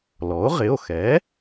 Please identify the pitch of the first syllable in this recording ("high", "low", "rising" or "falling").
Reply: rising